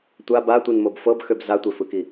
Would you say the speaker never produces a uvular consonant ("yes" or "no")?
yes